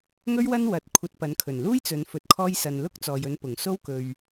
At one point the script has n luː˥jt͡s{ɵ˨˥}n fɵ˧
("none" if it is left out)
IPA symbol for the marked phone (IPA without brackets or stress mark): ɵ˨˧